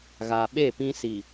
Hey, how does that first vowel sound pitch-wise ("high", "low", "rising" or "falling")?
low